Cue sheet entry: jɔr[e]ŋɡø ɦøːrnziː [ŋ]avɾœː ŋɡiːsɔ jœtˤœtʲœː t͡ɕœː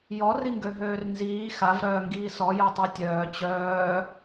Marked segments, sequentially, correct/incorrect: incorrect, incorrect

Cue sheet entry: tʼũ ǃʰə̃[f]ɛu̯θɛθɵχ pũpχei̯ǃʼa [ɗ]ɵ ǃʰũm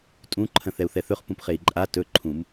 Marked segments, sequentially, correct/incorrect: incorrect, incorrect

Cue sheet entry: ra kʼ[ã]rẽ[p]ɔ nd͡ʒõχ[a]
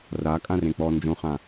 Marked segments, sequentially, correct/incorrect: correct, incorrect, incorrect

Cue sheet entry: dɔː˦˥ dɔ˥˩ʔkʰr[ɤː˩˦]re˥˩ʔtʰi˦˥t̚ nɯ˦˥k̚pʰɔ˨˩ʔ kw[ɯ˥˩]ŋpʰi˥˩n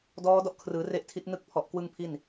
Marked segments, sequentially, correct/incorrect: incorrect, correct

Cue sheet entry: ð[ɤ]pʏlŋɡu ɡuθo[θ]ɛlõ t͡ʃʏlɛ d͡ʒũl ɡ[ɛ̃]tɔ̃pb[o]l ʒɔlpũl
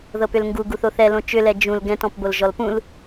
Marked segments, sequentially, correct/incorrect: correct, correct, correct, correct

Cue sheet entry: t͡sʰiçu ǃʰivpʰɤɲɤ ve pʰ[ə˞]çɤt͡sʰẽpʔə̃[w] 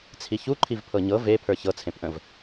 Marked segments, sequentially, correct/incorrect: correct, incorrect

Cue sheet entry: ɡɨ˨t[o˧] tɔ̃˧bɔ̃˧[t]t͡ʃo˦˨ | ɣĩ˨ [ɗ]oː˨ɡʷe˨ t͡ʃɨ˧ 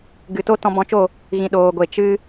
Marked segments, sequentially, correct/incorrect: incorrect, incorrect, correct

